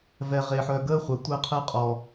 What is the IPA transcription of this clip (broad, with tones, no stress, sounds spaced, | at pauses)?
v ɛ˨ ʁ e˨ ħ œ˨ ɡ əː˦ χʷ ɛ˨ tʷ əː˦˨ qʰ əː˦ qʼ ɔ˨